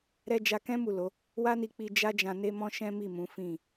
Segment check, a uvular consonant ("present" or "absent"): absent